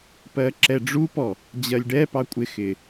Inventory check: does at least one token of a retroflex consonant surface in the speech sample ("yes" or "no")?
yes